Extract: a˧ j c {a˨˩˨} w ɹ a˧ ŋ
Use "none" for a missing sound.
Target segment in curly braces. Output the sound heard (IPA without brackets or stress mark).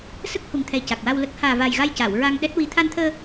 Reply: a˨˩˨